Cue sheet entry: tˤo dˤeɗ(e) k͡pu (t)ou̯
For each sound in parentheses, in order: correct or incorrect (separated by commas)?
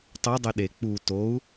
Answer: correct, correct